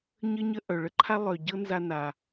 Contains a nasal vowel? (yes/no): no